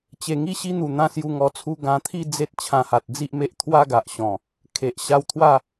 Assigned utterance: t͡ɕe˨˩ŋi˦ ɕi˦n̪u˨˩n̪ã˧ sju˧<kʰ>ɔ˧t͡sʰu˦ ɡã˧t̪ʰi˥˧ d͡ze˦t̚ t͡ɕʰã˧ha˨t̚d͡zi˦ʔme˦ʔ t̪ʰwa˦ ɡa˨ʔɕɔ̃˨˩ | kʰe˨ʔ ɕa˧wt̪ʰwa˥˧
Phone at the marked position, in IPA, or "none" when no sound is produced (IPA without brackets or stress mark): ŋ